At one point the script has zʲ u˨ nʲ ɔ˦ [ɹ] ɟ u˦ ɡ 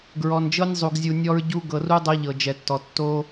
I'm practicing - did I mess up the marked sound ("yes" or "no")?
no